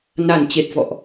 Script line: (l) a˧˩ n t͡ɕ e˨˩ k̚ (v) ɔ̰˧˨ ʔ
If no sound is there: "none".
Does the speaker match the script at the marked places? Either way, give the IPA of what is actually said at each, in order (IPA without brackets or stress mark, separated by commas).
n, v